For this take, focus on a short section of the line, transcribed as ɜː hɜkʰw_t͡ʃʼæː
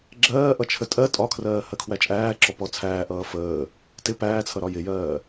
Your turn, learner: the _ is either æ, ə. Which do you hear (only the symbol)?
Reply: æ